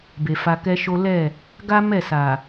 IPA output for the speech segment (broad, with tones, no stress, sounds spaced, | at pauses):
b e˨ f a˧ k ɛ˦ ʃ o˦ l ɛ˦˨ | ɡ a˦ m ɛ˦˨ s a˨